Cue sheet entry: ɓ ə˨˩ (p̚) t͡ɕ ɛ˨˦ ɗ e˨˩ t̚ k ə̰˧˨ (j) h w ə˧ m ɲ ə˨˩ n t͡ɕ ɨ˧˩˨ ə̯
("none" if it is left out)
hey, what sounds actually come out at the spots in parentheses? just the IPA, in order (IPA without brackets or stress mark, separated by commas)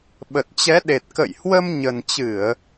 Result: t̚, j